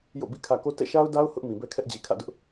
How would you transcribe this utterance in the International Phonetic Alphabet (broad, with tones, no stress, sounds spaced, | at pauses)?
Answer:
j o̰˦˨ b ḭ˦˨ kʰ ä˨ k o˦ t ɛ̰˦˨ ʃ a˦ ʊ̯ d a˦ ʊ̯ h ʊ˦ ʔ m ĩ˨ b ɛ˦ kʰ ɛ˦ ʔ d͡ʑ i˨ kʰ ä̰˦˨ d ʊ˦ ʔ